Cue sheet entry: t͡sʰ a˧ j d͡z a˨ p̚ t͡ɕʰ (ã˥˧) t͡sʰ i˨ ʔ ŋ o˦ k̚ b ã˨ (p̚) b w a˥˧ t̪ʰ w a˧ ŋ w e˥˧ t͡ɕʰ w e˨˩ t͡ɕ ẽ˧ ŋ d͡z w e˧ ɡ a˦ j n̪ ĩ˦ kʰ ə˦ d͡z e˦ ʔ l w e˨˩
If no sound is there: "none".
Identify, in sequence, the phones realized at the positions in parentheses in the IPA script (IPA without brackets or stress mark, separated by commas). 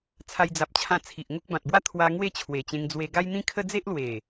ã˧, t̚